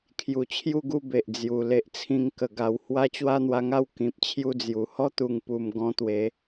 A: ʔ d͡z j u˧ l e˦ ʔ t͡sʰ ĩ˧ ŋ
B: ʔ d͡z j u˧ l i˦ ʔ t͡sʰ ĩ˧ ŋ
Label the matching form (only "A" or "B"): A